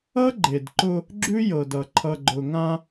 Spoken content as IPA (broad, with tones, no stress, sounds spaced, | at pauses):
ʌ˦ ɡ͡ǃ e˨ d ǃ ʊ˦ | ɡ͡ǁ ʉ˦ j ɤ˨ d ʌ˨ ǃʰ ʌ˨ ɡ͡ǃ ʊ˨ ŋ ã˦